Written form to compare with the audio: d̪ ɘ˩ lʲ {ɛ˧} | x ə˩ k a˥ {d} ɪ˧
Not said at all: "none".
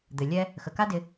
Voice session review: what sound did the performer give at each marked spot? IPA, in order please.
ɛ˧, d

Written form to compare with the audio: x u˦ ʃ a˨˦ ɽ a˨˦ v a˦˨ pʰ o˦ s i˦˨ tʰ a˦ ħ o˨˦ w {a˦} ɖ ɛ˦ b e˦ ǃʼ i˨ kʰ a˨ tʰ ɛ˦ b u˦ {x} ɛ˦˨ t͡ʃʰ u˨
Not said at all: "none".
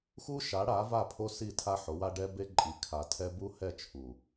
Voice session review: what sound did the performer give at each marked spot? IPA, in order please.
a˦, h

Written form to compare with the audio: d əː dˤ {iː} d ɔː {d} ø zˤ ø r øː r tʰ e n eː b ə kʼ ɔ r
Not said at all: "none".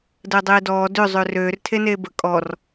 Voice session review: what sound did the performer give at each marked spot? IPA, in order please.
eː, d

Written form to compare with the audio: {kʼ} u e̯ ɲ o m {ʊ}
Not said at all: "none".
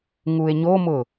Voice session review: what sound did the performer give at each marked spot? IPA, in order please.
ŋ, ʊ

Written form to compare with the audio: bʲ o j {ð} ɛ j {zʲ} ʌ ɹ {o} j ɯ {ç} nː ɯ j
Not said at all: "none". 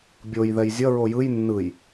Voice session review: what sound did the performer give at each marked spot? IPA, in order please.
ð, zʲ, o, j

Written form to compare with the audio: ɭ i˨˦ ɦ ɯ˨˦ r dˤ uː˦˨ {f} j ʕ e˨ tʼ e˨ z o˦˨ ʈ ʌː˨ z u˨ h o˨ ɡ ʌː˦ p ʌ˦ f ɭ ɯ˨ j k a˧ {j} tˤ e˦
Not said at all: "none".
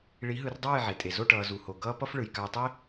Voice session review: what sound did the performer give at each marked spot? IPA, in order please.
none, j

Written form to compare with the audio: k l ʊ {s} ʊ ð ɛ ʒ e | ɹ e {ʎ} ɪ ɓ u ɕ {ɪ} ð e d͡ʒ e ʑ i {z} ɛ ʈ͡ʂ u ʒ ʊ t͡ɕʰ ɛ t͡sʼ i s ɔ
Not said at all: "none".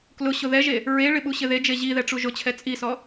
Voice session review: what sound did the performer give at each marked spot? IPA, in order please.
ɕ, ɭ, ɪ, ð

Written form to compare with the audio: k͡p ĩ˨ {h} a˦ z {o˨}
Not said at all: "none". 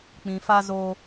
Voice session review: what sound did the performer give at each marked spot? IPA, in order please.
f, o˦

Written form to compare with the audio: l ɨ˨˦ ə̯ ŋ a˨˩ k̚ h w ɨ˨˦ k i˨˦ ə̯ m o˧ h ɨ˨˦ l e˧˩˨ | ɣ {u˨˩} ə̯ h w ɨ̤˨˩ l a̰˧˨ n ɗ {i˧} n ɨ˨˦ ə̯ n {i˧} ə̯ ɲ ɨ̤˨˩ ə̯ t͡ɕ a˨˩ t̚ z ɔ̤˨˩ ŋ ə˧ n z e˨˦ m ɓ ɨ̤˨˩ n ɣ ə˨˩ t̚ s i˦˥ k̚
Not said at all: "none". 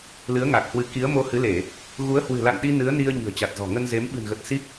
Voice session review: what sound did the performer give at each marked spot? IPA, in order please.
u˨˦, i˧, i˧

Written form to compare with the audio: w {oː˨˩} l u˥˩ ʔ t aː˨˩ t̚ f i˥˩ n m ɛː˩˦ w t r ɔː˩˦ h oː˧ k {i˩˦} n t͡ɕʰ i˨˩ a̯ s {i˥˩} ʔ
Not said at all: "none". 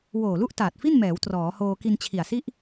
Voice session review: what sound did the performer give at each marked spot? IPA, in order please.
oː˨˩, i˧, i˥˩

